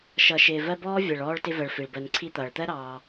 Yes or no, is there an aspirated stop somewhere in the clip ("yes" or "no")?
yes